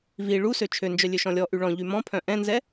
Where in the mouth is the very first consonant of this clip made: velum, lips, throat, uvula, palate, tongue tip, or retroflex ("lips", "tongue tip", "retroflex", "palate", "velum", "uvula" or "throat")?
lips